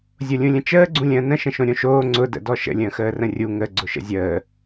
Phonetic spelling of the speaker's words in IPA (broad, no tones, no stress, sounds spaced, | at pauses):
zʲ o lʲ ũ lʲ ə̃ t͡ʃ əː ɡ͡ǀ ũ lʲ ə̃ː n ə̃ ʃ ə̃ ʃ õ ɾʲ õ ʃ oː ŋ͡ǀ ʊ d ə̰ d ɔ ʃ ə̰ lʲ ə̃ː x əː r ə̃ rʲ u ŋ ə ɡ͡ǀ ʊ ʃ ə̰ zʲ əː